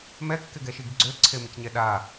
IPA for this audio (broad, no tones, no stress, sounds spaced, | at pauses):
m ɛ kː ɪ ɡ ɛ ʃ i ɡ ɡ͡ǀ ø ǀʰ e m ɪ c ɲ ɛ ɗ a